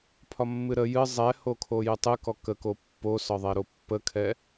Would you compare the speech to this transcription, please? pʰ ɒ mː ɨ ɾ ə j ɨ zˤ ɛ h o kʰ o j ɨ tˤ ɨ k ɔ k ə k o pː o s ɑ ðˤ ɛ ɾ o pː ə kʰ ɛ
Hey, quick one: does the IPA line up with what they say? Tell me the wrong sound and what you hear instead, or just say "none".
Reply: ɑ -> ɒ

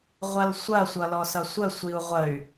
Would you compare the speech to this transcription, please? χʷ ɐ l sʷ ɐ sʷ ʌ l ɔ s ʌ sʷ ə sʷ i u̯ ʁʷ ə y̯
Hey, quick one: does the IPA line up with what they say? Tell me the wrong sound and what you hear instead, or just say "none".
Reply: χʷ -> ʁʷ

